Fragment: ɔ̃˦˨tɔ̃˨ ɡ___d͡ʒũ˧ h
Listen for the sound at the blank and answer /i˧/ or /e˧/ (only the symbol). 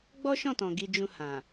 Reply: i˧